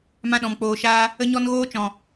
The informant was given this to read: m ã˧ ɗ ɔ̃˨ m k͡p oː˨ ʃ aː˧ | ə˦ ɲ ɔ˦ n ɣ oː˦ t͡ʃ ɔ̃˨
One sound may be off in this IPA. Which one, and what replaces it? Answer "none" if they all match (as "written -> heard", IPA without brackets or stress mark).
none